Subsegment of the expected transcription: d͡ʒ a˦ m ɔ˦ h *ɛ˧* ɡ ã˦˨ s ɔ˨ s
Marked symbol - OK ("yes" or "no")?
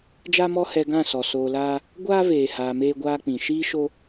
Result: yes